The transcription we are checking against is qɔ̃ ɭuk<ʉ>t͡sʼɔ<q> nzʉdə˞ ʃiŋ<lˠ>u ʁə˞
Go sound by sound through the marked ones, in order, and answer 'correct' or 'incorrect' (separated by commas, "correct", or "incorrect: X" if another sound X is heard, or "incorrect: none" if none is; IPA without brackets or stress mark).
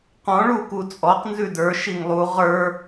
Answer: incorrect: u, correct, correct